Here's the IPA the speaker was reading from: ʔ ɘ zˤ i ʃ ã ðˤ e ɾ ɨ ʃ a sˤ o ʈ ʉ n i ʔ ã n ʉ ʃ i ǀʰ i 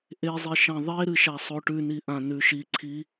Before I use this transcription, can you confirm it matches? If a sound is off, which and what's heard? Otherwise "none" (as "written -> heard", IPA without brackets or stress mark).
ɘ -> e